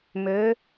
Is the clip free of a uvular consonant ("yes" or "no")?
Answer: yes